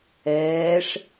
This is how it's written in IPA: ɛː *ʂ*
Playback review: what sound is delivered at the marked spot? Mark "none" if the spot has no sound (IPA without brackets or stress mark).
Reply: ʂ